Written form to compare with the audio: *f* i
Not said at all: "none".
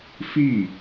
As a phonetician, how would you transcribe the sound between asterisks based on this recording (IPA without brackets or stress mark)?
f